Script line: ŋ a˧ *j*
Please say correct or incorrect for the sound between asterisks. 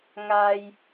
correct